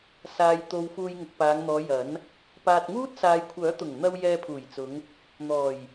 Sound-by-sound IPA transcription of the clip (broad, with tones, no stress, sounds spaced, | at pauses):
s aː˨ j t̪ o˨ w f uː˧ j ŋ ʊ˨ k̚ p aː˨˧ ŋ n̪ ɔː˨˧ j ɐ˨˥ n | p aː˨ t̚ ŋ uː˥ t̚ s aː˨ j kʷʰ œː˨˥ t̪ ʊ˨˩ ŋ n̪ ɐ˧ w j ɛː˧ pʰ uː˨˩ j t͡s ʊ˨˧ ŋ | n̪ ɔː˨˩ j